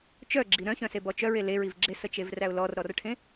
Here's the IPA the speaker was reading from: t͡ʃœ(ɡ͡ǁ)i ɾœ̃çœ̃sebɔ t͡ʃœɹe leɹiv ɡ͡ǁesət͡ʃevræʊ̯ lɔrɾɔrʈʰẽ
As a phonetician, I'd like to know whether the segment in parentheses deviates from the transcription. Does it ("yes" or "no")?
no